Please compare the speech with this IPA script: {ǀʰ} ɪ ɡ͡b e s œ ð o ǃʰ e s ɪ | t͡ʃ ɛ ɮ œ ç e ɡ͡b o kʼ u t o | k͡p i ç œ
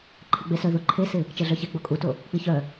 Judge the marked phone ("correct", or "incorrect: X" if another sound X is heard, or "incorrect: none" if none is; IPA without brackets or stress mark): incorrect: ǃʰ